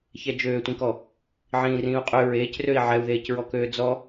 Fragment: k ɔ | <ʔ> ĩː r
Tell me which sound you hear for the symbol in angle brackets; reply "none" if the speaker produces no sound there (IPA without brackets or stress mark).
ʕ